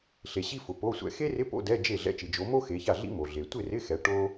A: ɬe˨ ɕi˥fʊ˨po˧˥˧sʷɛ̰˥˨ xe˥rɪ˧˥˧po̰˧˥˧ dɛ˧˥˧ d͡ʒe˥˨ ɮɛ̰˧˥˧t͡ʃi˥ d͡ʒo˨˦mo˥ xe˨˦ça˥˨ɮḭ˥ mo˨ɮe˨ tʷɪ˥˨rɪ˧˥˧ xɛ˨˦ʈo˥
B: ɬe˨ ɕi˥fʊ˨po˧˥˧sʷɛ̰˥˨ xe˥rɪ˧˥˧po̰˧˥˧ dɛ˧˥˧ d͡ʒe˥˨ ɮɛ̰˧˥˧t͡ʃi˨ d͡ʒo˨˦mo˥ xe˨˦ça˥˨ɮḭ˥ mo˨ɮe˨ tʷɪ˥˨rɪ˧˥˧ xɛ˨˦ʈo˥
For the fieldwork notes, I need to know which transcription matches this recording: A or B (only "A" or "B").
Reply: B